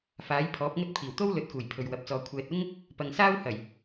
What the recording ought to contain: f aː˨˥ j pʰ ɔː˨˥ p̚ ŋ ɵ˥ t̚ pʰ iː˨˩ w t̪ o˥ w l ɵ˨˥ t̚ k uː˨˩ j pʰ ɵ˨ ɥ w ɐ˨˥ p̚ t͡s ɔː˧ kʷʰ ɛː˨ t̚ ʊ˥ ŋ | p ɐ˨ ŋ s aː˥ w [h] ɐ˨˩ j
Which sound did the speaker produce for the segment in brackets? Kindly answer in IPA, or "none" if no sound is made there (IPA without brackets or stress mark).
h